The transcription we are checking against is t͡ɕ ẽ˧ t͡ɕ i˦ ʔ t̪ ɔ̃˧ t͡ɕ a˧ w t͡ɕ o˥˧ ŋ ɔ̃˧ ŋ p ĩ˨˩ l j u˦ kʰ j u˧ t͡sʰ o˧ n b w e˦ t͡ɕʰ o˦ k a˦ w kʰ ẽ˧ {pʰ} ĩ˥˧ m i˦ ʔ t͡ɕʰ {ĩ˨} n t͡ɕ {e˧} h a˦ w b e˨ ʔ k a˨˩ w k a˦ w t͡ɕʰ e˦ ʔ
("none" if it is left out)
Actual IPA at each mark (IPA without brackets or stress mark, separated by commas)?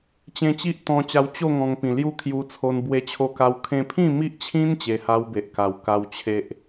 pʰ, ĩ˦, e˧